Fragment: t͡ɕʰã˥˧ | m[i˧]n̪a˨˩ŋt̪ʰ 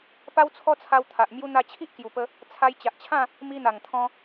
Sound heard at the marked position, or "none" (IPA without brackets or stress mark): i˧